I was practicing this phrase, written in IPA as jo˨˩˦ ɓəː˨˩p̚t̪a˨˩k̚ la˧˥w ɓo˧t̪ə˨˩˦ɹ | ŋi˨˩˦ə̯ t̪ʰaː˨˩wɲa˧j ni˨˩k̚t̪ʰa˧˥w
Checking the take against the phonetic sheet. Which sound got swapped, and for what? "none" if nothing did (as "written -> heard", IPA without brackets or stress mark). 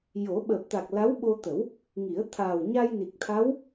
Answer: ɹ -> w